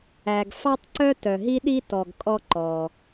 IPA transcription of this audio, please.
æ˩ ɡ f ɑ˥ tˤ ǀ œ˥ t œ˩ ɦ i˥ ɗ i˥ t ɔ˩ ɡ kʼ ɔ˥ ǃ ɔ˩

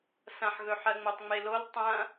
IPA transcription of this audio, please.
s ɐ̃ ħ ɣ ɵ ħ ɜ ŋ͡m o tˤ ŋ͡m e l o l tˤ ɐ̃

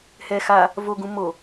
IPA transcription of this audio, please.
h ɛ x a | v o ɡ ũ m o

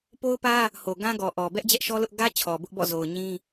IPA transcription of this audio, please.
p o˦ ʊ̯ p ä˦ | h o˨ ɡ ã˦ ɡ ɔ˨ ʔ ɔ˨ b ɛ˦ ʔ d͡ʑ ɛ˦ ʔ ʃ ɔ˦ l ʊ˦ ʔ ɡ ä˦ t͡ɕʰ ɔ˨ b ʊ˦ ʔ b ɔ̰˦˨ z o˨ ʊ̯ ɲ ĩ˦

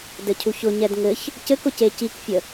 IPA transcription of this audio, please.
d ɘ cʰ u ç ʊ ɲ ɛ d ŋ ɘ ç | c ɘ k ʊ c e c i k fʲ ə

